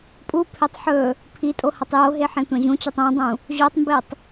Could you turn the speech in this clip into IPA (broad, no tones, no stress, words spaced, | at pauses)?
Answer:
pʼupʰetˤ ħɵ | pʰitʼo hɐtˤjoɦe ħẽtʷãʑũt͡ɕʉtˤ ẽdˤũ | ʑotˤmbetˤ